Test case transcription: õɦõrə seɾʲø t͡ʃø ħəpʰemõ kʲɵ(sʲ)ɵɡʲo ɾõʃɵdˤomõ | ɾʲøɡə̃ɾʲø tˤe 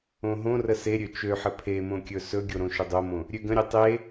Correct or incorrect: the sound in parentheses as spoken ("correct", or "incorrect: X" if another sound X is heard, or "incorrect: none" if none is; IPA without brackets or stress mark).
incorrect: s